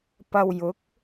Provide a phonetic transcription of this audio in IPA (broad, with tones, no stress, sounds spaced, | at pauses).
p ɐ˧ w j ʊ˨˥ k̚